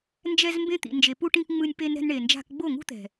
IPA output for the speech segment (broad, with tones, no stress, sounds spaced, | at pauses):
n d͡ʒ ɛ˧ z m b ẽ˧ t̪ ḭ˨ n d͡ʒ e˨ p u˦ ʈ ĩ˦ k ŋ͡m ɯ˧ nʲ p e˧ n ɾ ɛ̤˧ n ɳ e˨ n d͡ʒ a̤˧ k ɡ͡b o˦˨ ŋ ṳ˦ t̪ ɛ̤˨